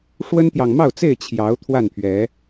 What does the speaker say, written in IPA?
ʂwə˦nt̪jɑ˨ŋ mɑ˥˨ʊ̯t͡se˥˨ɪ̯ t͡ɕʰjɑ˨˦ʊ̯ t̪ʰwa˥˨npʰɥɛ˨˦

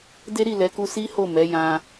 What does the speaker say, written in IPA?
de˦ɾi˦˨lɛ˨˦ku˧ si˦ho˦˨mɛ˨˦ jã˧

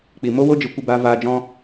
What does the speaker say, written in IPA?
k͡pi˨mo˦wo˦d͡ʒɨ˨˦ kʷe˧baː˧vaː˧ d͡ʒɔ̃˦

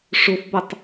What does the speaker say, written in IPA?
ʂofbɔtˤ

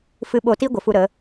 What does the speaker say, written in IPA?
fɨ˧ɓo˧ti˦ ɡʷə˨fu˧ɾə˨˦

